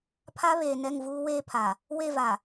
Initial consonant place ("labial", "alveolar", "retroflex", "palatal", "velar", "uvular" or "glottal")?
labial